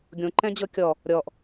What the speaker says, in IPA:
ɡʲõǃɛ̃d͡ʑɤ kʲɔ | ɾʲɔʔ

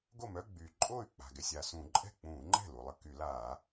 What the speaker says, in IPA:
ɡo˥˩mœ˧˥˧ɡ͡byː˩ ǃʼoː˥˩y̯k͡pa̤˩ ɡɛ˩sʲa˩sũː˧˩˧ ǃʼɛ̤˥˩k͡pũː˧˩˧ŋ͡ǃɛ̤˥˩ lu˩lˠə˥˩ ky˧˩˧laː˧˩˧

